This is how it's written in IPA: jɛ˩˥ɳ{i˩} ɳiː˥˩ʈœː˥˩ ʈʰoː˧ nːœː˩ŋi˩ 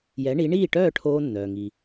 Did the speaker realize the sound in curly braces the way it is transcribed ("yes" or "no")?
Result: no